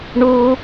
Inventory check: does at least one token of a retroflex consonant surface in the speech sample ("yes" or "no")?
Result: yes